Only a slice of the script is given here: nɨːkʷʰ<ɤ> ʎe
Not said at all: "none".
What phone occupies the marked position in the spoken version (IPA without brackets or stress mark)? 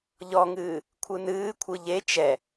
ɯ